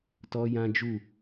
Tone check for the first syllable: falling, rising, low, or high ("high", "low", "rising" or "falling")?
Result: high